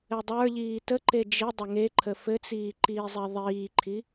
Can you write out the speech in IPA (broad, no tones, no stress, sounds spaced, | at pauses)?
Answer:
ɘ dˤ ə˞ ʎ iː t ə ǃ e d͡ʒ i dˤ ə ŋ e ǃʰ ə f ɘ t͡s iː ǃ iː zˤ e ðˤ iː ǃʰ i